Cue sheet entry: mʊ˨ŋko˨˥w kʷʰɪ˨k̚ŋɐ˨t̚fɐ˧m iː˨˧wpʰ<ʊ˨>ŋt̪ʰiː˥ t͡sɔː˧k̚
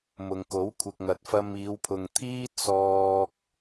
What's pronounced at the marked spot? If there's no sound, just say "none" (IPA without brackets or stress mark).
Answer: ʊ˨